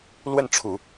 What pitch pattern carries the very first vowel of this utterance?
falling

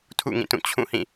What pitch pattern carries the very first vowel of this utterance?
falling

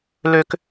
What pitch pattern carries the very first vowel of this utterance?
high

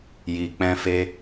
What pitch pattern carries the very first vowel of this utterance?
low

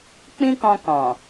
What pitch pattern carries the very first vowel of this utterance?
high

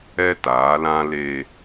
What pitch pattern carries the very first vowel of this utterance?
high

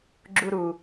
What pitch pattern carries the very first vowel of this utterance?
high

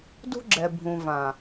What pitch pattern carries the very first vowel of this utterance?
high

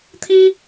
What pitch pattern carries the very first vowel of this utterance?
high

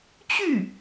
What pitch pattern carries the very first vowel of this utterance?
falling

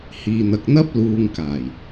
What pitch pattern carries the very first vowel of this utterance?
low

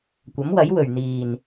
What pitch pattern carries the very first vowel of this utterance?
rising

